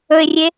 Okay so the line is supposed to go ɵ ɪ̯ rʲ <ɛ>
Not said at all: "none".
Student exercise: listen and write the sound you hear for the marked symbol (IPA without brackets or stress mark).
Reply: e